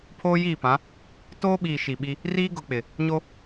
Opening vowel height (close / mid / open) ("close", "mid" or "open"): mid